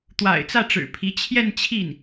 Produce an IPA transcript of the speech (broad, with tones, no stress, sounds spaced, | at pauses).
t̪ w a̰˨˩ ɪ̯ t͡s ä˥˩ ʈ͡ʂ ɻ̩˨˩ pʰ i˧˥ t͡ɕʰ j ɛ˥˧ n t͡ɕʰ i˥˩ n